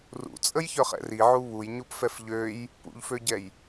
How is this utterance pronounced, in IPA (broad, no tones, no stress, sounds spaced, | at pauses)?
r ṵ t͡sʼ ə j ç œ χ ɛ̰ r i ʕ u β u j ɲ u p f ɛ f ʎ ø j | p ṵ ʎ f ø ɟ ɛ j